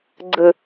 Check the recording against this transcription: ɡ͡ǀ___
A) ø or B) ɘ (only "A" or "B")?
B